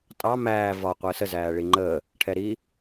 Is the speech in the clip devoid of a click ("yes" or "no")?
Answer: no